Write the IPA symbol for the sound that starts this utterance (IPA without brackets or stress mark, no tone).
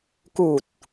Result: k